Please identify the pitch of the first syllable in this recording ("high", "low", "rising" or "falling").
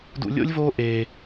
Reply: high